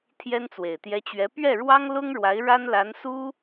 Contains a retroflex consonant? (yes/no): yes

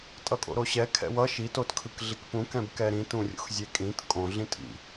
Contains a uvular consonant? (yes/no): no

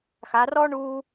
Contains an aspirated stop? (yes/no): no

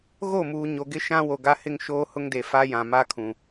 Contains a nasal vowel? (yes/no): yes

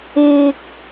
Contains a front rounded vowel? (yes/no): no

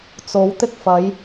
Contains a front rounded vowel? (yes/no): no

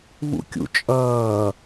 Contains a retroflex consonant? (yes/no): no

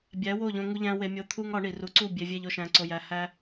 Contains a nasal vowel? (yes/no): yes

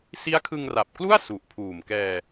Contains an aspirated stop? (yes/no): yes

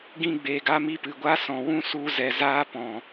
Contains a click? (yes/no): no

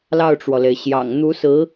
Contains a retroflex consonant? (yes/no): yes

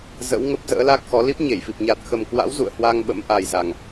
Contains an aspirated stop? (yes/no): no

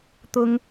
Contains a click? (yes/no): no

